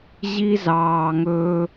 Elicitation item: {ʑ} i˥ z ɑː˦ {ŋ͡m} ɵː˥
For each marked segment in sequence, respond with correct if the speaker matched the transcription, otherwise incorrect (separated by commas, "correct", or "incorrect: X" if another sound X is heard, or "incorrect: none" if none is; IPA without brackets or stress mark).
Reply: correct, incorrect: ŋ